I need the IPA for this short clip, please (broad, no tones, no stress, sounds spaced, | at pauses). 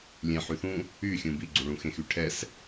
lʲ ẽ ħ y θ ũ | y xʲ ũ b i ɡ͡ǀ u ɭ ũ x ẽ x y ʈʰ ɛ s